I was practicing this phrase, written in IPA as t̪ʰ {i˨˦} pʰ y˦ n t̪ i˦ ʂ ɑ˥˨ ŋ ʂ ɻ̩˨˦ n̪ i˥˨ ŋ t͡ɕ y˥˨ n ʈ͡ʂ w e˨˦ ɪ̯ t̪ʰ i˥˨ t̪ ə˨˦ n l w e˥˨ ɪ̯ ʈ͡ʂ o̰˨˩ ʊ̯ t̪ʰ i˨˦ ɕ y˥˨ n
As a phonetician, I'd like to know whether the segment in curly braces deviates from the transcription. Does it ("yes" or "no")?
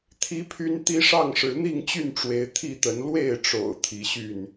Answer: yes